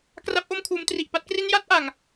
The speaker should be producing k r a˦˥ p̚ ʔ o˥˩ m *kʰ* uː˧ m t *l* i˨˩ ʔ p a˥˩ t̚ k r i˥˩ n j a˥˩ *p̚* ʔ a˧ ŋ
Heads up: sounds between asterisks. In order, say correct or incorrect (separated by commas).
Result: correct, incorrect, incorrect